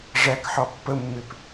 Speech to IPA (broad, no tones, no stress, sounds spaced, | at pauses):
ʐ æ k ħ ɒ pː ə mː ɪ p